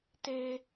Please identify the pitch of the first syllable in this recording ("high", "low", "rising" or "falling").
high